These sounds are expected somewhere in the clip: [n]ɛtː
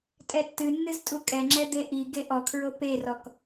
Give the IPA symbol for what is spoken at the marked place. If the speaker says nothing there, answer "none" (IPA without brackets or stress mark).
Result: tʼ